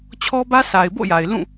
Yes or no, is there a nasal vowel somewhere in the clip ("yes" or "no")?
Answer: yes